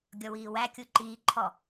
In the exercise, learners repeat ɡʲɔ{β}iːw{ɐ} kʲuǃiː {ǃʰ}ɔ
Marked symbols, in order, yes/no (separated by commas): no, no, yes